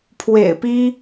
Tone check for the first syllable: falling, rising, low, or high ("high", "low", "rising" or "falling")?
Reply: low